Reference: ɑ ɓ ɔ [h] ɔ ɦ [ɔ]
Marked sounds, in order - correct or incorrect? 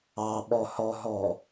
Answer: correct, correct

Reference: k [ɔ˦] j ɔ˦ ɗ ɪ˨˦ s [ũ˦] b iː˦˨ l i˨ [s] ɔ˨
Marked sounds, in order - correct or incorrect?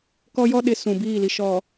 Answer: correct, incorrect, incorrect

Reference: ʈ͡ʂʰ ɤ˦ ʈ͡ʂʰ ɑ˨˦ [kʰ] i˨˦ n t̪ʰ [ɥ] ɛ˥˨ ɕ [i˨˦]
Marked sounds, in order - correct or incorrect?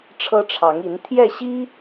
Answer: incorrect, incorrect, incorrect

